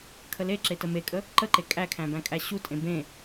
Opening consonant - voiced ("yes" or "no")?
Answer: no